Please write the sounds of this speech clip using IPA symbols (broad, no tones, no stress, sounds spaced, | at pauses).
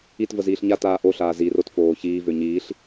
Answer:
i t v ə z iː ɬ ɲ a t aː ʔ o ɬ aː z i r o t f oː ç iː v ø ɲ iː ɬ